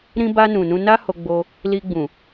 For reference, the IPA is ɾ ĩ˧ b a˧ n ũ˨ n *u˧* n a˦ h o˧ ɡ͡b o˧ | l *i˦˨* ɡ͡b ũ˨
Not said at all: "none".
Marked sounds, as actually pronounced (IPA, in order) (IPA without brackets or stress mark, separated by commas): ũ˧, i˧